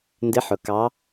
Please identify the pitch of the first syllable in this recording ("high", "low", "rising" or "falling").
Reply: rising